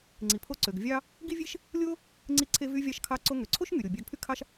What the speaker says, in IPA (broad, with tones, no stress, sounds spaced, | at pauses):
ŋ͡ǀ i˩ pʰ o˧ ǀ ø˩ ɡ vʲ ɑ˥ | ɡ i˥ vʲ e˥ ʃ | lʲ o˥ | ŋ͡ǀ i˧ ǀʰ e˧ v y˧ vʲ ɑ˧ ʃ kʰ ɑ˧ ǀ o˧ ŋ ø˩ ǀʰ o˥ ʃ ŋ y˩ ɾʲ o˩ bʲ ɑ˧ ɡ pʰ y˥ kʰ ɑ˥ ʃ